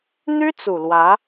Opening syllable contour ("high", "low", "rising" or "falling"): high